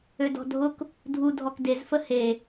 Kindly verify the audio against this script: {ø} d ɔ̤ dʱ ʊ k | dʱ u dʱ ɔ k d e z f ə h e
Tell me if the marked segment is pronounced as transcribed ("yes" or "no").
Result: yes